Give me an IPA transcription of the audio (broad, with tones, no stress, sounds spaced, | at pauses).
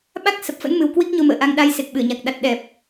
ɓ a˦˥ k̚ s ə˨˩ p̚ f ə̰˧˥ n m ɨ˨˩ w k w i˦˥ k̚ ɲ o˧ m ə̰ː˧˨ ʔ a˧ ŋ ɗ a˧ j s e˨˩ k̚ ɓ ɨ˧˩ ə̯ ɲ a˨˩ k̚ ɗ a˨˩ t̚ ɗ ɛ˨˩ p̚